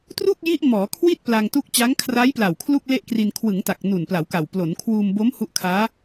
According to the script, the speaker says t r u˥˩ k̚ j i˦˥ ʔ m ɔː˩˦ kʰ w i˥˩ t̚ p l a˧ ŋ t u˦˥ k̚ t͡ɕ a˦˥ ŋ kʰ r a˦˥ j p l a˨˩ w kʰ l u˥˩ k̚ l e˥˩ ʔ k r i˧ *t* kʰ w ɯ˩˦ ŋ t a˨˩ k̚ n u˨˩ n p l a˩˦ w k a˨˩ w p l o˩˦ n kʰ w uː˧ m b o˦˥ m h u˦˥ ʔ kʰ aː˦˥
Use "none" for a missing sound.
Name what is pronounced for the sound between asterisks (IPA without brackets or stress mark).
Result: n